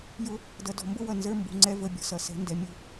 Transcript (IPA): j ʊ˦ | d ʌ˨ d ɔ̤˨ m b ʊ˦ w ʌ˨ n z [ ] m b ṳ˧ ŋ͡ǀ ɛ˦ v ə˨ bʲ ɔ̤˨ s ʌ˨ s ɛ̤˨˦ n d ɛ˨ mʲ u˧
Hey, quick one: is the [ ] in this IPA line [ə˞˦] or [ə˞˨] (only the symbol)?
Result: ə˞˦